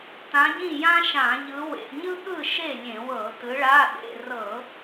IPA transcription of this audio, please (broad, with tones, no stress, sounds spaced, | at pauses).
t ã˨˦ ɟ ĩ˥˨ j ã˥ ʃ ã˧˩˧ ʎ ɯ˨˦ w ḛ˧˥˧ ɲ ɯ˥ ɠ ɯ˥˨ ʃ e˥˨ lʲ ẽ˧˩˧ w ɤ˧˩˧ t ɯ˨˦ ɭ a˧˥˧ ɗ ḛ˧˥˧ r ɤ˧˩˧